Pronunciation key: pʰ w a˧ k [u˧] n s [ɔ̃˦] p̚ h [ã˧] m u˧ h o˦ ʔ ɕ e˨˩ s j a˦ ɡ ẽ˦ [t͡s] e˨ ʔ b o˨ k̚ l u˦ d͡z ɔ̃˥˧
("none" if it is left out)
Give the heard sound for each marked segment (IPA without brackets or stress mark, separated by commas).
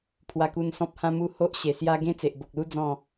u˧, ɔ̃˦, ã˧, t͡s